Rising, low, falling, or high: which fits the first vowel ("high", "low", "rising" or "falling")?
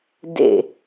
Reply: falling